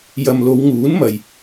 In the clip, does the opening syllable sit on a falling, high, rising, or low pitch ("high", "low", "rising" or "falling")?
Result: low